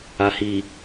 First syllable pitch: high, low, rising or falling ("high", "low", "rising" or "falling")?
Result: low